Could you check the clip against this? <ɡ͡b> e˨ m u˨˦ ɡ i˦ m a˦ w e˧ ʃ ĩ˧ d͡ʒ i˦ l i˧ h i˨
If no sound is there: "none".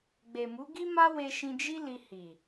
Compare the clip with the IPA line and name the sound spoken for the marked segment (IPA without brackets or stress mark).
ɡ͡b